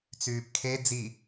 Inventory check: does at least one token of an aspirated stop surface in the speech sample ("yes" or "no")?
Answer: yes